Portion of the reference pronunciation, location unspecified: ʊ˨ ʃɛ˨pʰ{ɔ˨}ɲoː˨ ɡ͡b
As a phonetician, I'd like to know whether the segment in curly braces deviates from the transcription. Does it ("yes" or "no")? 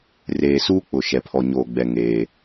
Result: no